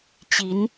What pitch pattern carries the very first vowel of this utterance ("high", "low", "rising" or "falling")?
rising